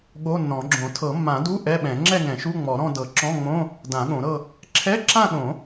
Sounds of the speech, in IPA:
ɠ o˧˥˧ nː ɔ̃˨˩˦ ɡ͡ǁ õ˨˩˦ tʰ ɤ˨˩˦ mː ã˨˩˦ d u˧˥˧ ʔ ɛ˧˥˧ ɓ ɛ̃˨˩˦ ŋ͡ǁ ɛ˥˧ ŋ ɛ̃˨˩˦ ʃ u˧˥˧ ŋ͡m ɔ˨˩˦ ɾ ɔ̃˥˧ d ɤ˨˩˦ ǁ ɔ̃˧˥˧ ŋ͡m õ˧˥˧ | d ã˨˩˦ ɠ õ˨˩˦ ɾ ɤ˥˧ | ǁʰ ɛ˧˥˧ ǁ ã˥˧ ɗ õ˨˩˦

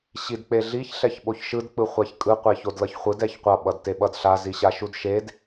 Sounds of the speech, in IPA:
ɕ i d k͡p e ɮ i ç ɬ ɛ ç ɓ o ç ʃ ɯ d k͡p ɯ χʷ a ç kʼ ɯ qʷ e ç o d l ʌ ç χʷ ɯ d ɛ ç qʷ ʌ ɓ ʌ d t e ɓ ʌ d ɬ a z i ɕ a ʃ u d ʃ e d

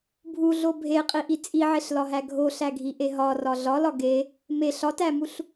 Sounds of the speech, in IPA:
bʱ u ɮ o bʱ e qʼ i ʔ i t͡sʼ i ʕ e ɬ l ɒ ɦ æ ɡʱ o ɬ æ ɡʱ i ʔ e ɦ ɒ r ɒ ɮ ɒ l ɒ ɡ e | m e ɬ ɒ t æ m u ɬ

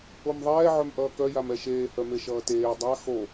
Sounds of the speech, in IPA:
o m ðˤ ɛː ʕ œ m ʔ ʌː k œ j a m ɛ ʃ eː h œ m e ʃ ʌː t eː dˤ a x o

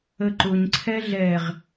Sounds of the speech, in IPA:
ə ǃ ʊ ɲ ǀʰ ɛ ɮ ɛ ʁ

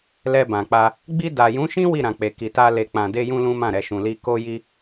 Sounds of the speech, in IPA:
l ɛ˧ b ã˨ k͡p a˧ | ɡ͡b i˧ d a˨ j ũ˨˦ ʃ ĩ˦ w i˦˨ ɾ ã˨ k͡p e˨ k i˨ t a˧ l e˨ k͡p ã˨ d e˧ j ũ˧ l ũ˦ m ã˦˨ ɾ ɛ˨˦ ʃ ũ˧ l i˦ k o˦ j i˦

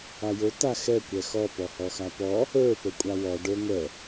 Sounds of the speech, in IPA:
a j o t a x ɛ kʷ ɛ x ɔ p ɔ h ɔ x a p ɔ | ə˞ p ə kʷʼ a w ɔ ɖ ə˞ ŋʷ ɛ

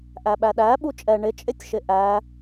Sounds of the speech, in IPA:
ʔ æ ɓ æ ɗ æ ɓ u t͡ʃʼ ɛ ɳ ɪ t͡ʃʼ ɪ tʲ ʃ ɪ ʔ æ

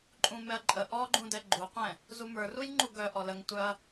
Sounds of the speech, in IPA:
ǃʼ ũ m ɛ ɐ̯ ǃʼ ə ʔ ɔ ɡ͡ǃ ũ d ɛ ɡ͡ǃ u qʷ ɛ̃ | z u m ə˞ r u j ŋ͡ǃ u ɡ œ ʔ ɔ l ə ŋ tʷ œ ɐ̯

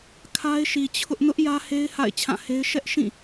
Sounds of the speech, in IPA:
kʰ a˦ ɪ̯ ʃ i˨ t͡ɕʰ ʊ˦ ʔ n ʊ˦ ʔ j ä˦ h e˦ ɪ̯ h a̰˦˨ ɪ̯ t͡ɕʰ ã˦˨ h e˦ ɪ̯ ʃ ɛ˦ ʔ ʃ ĩ˦˨

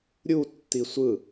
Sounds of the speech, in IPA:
ɾʲ u tː i sʷ ɯ

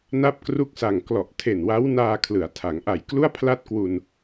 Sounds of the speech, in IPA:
n a˥˩ p̚ k r u˦˥ k̚ s a˨˩ ŋ k l ɔ˨˩ ʔ tʰ e˨˩ n w a˦˥ w n aː˧ kʰ l ɯ˩˦ a̯ tʰ a˩˦ ŋ ʔ a˨˩ j k l u˥˩ a̯ pʰ l a˥˩ t̚ k w u˧ n

